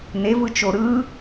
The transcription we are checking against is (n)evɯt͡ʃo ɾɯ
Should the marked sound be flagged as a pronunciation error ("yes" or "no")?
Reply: no